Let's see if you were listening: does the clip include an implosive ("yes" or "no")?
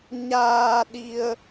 yes